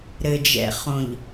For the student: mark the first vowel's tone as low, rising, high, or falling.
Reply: low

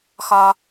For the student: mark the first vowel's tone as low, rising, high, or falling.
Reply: high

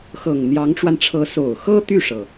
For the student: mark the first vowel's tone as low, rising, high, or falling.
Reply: low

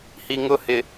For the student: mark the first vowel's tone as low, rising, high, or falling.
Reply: low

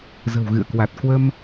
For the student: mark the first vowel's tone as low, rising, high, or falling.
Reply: low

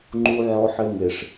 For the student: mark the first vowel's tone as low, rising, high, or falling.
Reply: high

